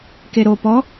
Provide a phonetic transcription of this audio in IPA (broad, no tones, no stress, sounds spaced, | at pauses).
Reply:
k e ɾ o p ɔ